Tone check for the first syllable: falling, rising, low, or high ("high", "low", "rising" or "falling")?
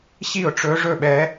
falling